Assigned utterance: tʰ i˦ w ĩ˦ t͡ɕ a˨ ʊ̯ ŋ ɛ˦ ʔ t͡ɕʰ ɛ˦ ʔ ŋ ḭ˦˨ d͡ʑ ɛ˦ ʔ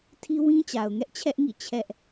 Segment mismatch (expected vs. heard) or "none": d͡ʑ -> t͡ɕʰ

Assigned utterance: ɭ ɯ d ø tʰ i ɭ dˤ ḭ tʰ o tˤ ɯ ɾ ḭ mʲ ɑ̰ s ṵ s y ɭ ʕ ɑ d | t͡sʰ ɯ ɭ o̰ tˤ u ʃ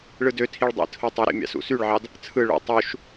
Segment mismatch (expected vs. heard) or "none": none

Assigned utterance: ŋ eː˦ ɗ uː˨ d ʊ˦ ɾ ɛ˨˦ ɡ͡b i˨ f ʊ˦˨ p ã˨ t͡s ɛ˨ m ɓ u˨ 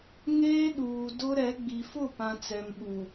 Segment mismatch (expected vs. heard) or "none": none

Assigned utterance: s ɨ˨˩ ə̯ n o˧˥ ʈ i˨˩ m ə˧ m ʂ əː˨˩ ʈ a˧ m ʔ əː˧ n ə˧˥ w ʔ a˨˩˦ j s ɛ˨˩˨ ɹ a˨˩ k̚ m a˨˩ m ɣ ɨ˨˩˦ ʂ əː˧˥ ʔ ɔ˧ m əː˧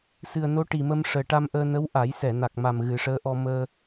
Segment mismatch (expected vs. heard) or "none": ɹ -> n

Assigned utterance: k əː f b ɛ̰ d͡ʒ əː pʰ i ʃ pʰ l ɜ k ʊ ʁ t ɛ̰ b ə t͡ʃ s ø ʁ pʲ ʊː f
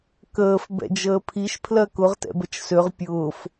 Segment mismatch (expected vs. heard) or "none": none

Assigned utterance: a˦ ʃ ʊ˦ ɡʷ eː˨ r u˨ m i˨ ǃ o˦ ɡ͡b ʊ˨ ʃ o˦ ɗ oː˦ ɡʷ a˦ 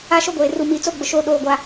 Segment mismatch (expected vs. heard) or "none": ǃ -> t͡s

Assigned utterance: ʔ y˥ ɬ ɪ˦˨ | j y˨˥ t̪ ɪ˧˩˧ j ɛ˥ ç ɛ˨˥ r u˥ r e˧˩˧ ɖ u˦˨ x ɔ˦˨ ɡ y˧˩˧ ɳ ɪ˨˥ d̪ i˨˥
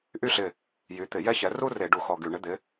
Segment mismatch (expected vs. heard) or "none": i˨˥ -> ɪ˨˥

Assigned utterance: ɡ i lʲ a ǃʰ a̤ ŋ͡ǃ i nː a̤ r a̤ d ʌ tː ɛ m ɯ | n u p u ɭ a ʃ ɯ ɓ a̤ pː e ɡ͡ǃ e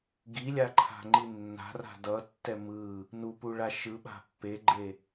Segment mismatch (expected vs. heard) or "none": none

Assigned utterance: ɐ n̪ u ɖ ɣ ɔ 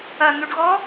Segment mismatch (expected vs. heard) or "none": none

